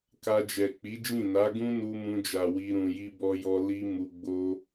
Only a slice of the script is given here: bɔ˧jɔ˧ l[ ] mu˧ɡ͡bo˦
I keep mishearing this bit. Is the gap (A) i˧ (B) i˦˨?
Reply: A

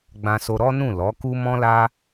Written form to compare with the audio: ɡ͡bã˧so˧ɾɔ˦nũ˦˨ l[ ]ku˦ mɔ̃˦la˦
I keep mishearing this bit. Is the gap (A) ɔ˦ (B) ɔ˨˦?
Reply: B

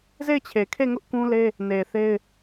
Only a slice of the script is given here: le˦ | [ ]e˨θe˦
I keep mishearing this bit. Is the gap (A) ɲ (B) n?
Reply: B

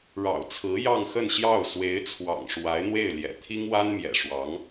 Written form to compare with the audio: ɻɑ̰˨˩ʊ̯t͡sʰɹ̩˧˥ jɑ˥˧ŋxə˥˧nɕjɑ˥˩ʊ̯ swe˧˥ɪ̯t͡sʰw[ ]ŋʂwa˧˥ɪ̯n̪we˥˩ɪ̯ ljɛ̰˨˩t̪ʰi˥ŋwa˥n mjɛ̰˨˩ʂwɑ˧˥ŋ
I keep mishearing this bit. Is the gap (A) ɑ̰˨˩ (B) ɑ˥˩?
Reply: A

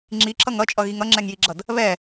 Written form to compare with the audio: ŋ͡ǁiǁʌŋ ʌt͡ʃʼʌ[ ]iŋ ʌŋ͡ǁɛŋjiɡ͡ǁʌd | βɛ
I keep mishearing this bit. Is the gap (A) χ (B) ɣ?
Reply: B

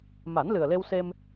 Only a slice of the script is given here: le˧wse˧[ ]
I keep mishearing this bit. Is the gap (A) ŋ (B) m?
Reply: B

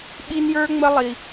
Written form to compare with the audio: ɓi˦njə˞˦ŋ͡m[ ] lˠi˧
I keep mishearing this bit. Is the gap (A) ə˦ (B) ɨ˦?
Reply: A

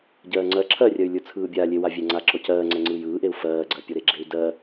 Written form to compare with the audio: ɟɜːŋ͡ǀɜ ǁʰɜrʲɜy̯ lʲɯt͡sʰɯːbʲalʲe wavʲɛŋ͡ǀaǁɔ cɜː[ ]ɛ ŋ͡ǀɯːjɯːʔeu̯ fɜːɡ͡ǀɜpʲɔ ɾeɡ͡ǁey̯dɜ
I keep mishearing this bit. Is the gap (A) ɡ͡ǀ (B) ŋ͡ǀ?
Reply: B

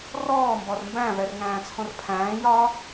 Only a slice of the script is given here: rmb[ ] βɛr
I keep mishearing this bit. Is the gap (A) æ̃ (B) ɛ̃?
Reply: A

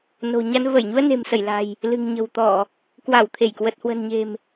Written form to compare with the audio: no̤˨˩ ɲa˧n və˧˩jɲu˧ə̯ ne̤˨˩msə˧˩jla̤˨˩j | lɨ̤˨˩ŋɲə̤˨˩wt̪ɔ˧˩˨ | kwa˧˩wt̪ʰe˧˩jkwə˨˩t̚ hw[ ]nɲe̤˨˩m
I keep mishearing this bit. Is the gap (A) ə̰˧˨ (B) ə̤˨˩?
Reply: B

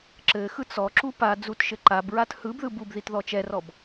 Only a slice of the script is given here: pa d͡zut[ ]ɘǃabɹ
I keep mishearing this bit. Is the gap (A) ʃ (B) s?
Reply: A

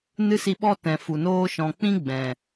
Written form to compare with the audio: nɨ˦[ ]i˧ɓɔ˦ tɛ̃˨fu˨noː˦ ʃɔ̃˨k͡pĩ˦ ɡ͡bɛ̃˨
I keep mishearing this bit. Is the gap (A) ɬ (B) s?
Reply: B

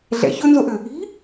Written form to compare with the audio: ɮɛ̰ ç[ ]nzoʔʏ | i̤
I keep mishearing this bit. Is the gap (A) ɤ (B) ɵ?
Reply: B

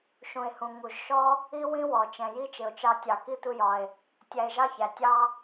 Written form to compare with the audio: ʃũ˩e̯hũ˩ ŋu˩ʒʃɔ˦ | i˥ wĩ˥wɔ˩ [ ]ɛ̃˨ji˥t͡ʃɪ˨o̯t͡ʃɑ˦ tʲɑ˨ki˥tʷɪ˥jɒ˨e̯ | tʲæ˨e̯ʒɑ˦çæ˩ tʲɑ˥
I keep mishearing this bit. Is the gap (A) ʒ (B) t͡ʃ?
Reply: B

